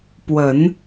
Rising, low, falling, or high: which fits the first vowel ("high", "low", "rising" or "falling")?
low